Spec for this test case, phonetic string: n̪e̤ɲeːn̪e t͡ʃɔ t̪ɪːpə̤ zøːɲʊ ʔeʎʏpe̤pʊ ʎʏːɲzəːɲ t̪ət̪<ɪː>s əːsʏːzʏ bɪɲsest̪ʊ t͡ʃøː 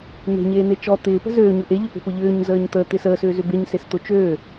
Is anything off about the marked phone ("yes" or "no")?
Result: no